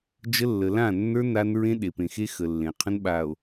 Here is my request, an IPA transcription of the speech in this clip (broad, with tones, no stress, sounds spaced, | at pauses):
d͡ʒ ə˦ lː ə˨ l ã˦˨ nː ə˞˦ n a˦ n ɹ ẽ˦ ɗ e˨ p ẽ˨ x e˦ x ə˨ lː ẽ˨ qʰ ə̃˦ n ɓ a˨ o̯